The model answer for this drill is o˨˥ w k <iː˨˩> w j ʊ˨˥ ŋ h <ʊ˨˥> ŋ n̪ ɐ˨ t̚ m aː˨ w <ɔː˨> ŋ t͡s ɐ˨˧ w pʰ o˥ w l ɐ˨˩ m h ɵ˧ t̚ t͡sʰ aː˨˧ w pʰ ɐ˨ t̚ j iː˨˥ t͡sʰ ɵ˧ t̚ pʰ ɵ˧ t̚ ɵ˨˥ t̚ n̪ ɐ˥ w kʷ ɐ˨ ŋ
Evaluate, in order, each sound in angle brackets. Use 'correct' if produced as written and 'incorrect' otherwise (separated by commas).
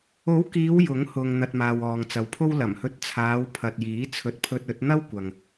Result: incorrect, incorrect, correct